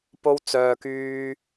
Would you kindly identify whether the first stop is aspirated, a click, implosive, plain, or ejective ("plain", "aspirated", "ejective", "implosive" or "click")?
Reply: plain